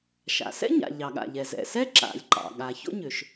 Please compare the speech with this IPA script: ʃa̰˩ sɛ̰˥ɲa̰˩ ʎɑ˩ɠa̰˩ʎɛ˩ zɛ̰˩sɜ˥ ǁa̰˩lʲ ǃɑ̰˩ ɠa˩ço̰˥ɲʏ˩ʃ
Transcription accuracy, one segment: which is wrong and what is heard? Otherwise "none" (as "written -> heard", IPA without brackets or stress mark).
ɜ˥ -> ɛ˥